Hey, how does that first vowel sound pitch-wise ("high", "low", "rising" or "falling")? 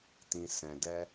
low